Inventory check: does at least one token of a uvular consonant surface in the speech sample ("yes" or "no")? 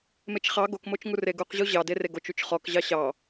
yes